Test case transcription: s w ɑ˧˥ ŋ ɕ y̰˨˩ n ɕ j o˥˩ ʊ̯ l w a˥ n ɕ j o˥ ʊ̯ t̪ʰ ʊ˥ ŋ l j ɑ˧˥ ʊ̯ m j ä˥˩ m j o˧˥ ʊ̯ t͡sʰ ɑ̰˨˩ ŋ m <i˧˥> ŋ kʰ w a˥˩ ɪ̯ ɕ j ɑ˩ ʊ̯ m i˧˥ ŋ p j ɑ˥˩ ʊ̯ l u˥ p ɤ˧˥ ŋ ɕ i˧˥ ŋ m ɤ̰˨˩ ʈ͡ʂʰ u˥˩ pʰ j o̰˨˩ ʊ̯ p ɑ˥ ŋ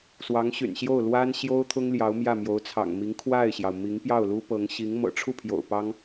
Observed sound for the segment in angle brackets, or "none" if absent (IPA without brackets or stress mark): i˧˥